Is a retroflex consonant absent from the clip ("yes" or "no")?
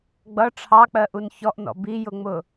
no